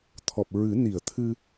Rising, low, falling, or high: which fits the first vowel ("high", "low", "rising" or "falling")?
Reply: low